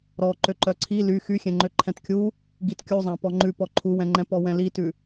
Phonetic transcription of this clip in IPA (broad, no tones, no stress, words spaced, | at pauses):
ɾɔ ǃøǃœǀʰi ly xyxʲɛ̃ ŋ͡ǃøǃʰɛ̃tkʲu | ɡitkʲuzˤæ̃ pɔŋ͡ǃʉpɔ ǃʰuwɛ̃ŋ͡ǃɛ̃pɔ wɛ̃litʉ